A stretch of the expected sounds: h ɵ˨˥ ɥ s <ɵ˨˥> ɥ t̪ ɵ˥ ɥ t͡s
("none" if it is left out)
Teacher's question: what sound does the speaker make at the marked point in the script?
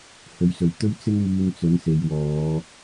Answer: ɵ˨˩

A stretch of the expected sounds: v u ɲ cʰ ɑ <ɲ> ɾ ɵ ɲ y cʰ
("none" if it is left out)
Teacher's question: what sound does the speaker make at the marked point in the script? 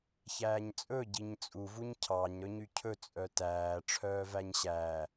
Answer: ɲ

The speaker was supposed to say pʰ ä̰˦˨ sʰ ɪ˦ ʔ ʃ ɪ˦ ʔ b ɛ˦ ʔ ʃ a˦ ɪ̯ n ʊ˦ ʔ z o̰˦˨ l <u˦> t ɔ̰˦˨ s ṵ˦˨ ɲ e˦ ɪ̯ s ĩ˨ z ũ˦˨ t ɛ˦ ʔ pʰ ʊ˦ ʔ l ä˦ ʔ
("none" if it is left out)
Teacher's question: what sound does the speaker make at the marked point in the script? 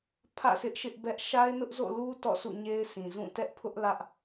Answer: u˦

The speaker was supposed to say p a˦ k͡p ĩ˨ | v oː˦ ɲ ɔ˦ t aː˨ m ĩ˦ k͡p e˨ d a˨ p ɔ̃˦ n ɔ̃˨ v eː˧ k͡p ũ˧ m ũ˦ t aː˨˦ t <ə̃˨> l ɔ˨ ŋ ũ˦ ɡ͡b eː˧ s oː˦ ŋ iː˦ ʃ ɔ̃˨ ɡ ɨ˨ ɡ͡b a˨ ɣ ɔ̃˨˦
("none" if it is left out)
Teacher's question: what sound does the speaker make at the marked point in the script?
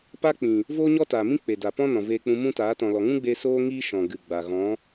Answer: ɔ̃˨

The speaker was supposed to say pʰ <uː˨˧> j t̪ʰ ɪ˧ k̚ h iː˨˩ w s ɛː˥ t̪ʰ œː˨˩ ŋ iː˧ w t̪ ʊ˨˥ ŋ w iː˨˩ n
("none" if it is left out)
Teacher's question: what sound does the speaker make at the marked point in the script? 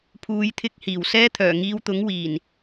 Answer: uː˨˧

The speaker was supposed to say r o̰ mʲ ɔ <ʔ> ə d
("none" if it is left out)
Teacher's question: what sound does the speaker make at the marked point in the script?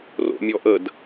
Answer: ʔ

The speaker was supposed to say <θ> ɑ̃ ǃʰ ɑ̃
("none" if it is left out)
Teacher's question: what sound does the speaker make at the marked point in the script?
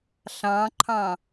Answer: ɬ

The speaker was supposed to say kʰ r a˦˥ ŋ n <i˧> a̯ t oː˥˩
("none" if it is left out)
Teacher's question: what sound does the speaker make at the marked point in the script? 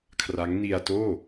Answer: i˧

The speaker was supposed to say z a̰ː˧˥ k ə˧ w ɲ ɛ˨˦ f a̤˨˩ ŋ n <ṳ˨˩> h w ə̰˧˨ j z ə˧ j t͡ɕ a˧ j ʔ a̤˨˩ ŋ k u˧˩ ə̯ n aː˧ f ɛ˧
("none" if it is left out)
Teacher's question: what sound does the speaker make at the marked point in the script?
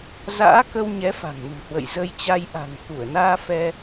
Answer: ṳ˨˩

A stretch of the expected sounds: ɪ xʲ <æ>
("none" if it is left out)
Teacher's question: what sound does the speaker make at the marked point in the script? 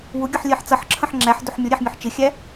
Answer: æ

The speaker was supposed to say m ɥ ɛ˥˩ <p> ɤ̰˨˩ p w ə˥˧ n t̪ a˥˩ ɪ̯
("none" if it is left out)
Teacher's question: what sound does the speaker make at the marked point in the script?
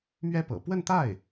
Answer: p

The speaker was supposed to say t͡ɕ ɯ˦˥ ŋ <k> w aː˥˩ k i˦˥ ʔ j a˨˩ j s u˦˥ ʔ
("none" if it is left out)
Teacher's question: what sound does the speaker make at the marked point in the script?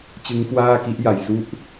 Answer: k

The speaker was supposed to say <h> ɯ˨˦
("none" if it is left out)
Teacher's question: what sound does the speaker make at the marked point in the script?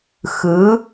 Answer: x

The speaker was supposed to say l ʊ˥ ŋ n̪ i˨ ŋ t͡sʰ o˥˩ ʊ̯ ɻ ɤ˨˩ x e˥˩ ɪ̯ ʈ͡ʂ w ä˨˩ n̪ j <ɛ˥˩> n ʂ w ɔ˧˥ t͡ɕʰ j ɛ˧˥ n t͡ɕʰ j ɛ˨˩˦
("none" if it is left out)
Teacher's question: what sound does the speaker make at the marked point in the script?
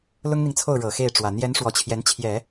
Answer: ɛ˧˥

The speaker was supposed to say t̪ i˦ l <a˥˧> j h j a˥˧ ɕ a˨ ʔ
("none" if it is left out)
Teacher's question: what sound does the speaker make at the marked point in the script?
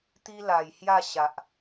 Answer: a˨˩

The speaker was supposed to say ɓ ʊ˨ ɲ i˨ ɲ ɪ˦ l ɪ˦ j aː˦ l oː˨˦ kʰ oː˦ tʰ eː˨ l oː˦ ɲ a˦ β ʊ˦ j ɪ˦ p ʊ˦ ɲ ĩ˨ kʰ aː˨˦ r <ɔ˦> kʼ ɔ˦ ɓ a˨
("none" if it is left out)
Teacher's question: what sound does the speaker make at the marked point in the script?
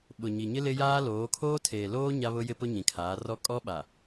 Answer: ɔ˦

